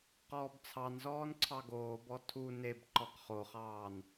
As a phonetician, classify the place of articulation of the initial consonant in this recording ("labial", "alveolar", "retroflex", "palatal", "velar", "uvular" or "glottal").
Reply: uvular